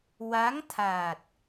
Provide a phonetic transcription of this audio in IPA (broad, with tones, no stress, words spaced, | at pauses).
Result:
wa˧˥ŋ t̪ʰaː˨˩t̚